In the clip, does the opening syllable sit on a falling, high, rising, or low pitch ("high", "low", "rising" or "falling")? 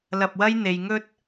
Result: low